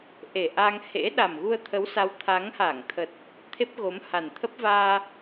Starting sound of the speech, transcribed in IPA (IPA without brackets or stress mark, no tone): ʔ